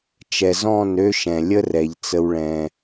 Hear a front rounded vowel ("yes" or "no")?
yes